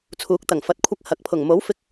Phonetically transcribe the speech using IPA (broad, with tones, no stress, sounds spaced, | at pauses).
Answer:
t͡sʰ uː˨˥ k̚ t̪ ɐ˨˩ ŋ f ɐ˨ t̚ kʷʰ ɐ˧ k̚ h ɐ˨˥ k̚ pʰ ʊ˨˩ ŋ m o˨˥ w f ɪ˧ k̚